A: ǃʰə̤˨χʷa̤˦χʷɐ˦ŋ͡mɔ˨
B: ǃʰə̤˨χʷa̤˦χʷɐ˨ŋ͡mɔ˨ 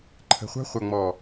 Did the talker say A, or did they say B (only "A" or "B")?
B